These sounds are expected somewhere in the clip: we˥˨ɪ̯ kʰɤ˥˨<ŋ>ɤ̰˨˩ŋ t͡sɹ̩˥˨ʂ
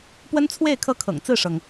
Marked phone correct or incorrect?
incorrect